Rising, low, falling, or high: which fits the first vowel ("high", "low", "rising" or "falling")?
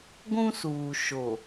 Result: high